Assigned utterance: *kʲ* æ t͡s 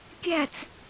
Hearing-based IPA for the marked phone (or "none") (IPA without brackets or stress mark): kʲ